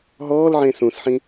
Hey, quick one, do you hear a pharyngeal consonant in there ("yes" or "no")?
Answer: yes